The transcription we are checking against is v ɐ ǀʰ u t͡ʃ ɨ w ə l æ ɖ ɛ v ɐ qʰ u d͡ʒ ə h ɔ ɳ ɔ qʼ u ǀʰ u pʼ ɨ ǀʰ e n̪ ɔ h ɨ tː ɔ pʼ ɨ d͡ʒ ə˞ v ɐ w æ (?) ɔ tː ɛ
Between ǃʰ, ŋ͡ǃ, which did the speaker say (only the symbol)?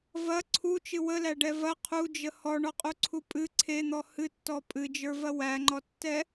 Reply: ŋ͡ǃ